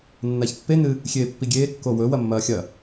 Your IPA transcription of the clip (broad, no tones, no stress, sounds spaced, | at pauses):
nː a ç pː e n ɨ | xʲ eː pː i ɡʲ eː kː o w ɵ w ɐ mː ɐː xʲ ɐ